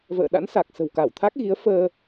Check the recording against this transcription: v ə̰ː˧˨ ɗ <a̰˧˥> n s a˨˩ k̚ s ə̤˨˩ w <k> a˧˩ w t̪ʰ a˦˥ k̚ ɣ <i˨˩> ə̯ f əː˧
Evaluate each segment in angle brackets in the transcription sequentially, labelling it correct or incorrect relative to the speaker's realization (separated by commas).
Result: correct, correct, incorrect